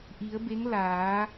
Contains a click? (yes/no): no